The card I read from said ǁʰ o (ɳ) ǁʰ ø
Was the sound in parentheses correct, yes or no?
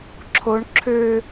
yes